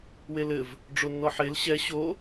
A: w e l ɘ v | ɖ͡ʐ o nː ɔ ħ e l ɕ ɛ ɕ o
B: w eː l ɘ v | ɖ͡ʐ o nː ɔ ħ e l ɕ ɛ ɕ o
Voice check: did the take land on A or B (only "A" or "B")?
A